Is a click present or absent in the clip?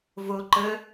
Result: present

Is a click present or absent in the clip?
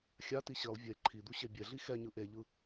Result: present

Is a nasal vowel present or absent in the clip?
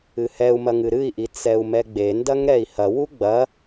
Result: absent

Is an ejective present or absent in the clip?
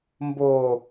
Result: absent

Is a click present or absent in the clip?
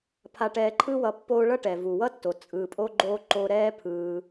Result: present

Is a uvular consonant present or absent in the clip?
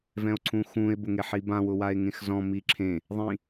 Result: absent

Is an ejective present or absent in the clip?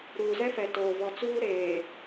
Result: absent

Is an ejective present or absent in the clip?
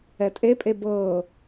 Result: present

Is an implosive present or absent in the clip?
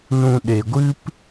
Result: present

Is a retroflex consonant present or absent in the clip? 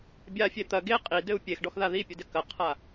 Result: present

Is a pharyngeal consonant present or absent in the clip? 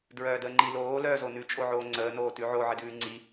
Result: present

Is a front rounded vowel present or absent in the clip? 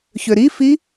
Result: present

